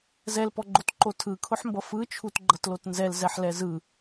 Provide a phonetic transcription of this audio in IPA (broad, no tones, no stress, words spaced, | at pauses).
zɛlpɔɡ͡ǃotǃo tʰɯkʰʊħmbʌ fɯt͡ʃʰutɡ͡ǃʌtlot nzɛlzɛħlɛ zɯ